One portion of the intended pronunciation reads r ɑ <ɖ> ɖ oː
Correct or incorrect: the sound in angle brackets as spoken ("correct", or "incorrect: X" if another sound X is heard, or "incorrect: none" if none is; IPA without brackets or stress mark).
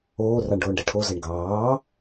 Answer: incorrect: ɳ